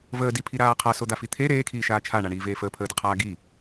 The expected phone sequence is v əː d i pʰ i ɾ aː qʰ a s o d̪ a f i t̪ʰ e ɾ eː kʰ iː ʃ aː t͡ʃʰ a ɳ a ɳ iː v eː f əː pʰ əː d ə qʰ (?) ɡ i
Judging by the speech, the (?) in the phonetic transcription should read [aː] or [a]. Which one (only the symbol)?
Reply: aː